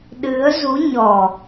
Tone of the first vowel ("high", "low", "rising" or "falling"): rising